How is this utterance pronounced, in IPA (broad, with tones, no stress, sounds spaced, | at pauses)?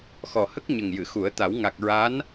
x ɔ˨˩ h ə˦˥ k̚ ɲ ə˨˩ ŋ j ɨ˨˩˨ x u˨˩˦ ə̯ t̪ a˨˩˦ w ŋ a˨˩ k̚ ɹ a˧˥ n